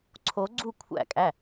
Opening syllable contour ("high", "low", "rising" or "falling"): rising